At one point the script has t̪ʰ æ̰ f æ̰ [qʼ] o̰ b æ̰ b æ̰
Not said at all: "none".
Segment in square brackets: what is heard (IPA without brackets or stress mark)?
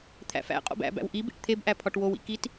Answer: qʼ